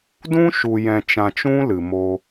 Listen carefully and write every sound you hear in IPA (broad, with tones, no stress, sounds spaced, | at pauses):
d ũ˦ ʃ u˨ j ɛ̃˨ t͡ʃ ã˨ t͡ʃ ũ˧ l ɨ˨ m o˧